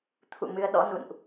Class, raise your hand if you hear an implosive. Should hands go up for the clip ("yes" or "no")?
yes